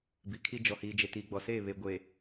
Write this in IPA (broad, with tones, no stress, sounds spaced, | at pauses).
b i˨ kʰ i˦ d͡ʒ ɔ˨ h iː˨ d͡ʒ e˨ t iː˨ ɡ͡b ɔ˨ s eː˦˨ β e˨ ɡʷ eː˨